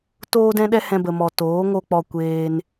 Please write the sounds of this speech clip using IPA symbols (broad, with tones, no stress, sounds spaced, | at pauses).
t oː˦ d ɛ̃˦ ɗ ɛ˦ h ɛ̃˧ b ə˨ m ɔ˨ t oː˨˦ ŋ o˦ k͡p ɔ˧ kʷ eː˧ n